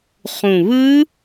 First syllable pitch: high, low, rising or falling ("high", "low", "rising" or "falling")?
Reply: low